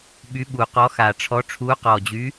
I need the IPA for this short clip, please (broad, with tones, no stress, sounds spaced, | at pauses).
ɓ y˨˥ ɓ u˨˩ q ɔ˨˥ x a˨˩ ʈ͡ʂʰ ɔ˨˥ ʈ͡ʂʰ u˨˥ q ɔ˨˩ d͡ʑ y˨˥